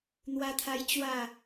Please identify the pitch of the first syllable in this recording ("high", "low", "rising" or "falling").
high